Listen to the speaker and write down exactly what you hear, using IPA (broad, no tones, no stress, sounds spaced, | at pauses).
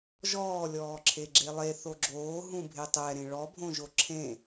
ʒ ɔː lʲ ɔː ǁʰ e ɡ͡ǁ e lˠ e θ o ɡ͡ǁ oː ɦ ũ bʱ e tˤ ɛ ɾ ẽ ɭ ɔ bʱ õ ʒ o ǁʰ ẽ